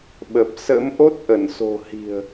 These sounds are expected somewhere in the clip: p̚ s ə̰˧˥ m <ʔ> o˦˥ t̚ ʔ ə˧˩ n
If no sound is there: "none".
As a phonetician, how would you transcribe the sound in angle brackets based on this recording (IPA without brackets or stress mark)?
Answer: ʔ